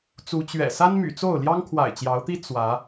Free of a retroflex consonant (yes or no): yes